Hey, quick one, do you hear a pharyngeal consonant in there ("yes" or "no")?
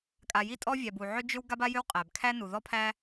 yes